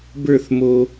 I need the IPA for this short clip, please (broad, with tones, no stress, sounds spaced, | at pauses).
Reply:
b ə˞˦˨ θ m o˧